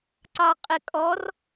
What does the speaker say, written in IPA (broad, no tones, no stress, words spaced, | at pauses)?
ǀɑqʼɪkʼɔr